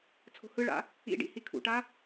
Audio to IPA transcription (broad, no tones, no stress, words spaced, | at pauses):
t͡sʰo̤hɯɭa̰ | ḭɖḭ hikʰṵʈa